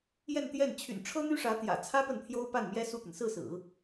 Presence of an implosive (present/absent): absent